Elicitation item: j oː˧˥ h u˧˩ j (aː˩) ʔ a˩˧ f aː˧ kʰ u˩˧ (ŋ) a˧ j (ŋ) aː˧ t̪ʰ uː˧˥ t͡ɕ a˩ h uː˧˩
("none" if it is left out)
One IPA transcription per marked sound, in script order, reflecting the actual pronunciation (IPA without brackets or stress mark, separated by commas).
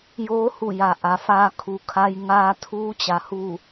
a˩, kʰ, ŋ